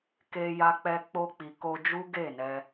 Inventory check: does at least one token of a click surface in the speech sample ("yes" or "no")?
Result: no